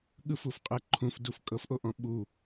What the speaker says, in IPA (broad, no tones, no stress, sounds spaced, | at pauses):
ɠ ɯ f u f qʼ ɛ ǃʰ ũ f d u f kʼ ɤ f ʔ o ʔ ɔ̃ ɓ u